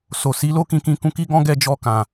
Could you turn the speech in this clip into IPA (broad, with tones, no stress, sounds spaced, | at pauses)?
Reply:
s o˨ s i˨˦ l o˦ k ĩ˧ k ĩ˧ k ũ˧ k i˦ ɡ ɔ̃˦ ɡ ɛ˦˨ d͡ʒ ɔ˧ k ã˨